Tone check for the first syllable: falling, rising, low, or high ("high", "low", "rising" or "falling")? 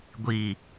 low